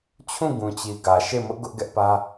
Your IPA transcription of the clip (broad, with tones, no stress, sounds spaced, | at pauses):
t͡ɕʰ ũ˦˨ ɡ ũ˨ t͡ɕ i˨ ɡ ä˨ ʃ e˦˨ m ʊ˦ ʔ ɡ ʊ˦ ʔ ɡ ɛ˦ ʔ p ä˦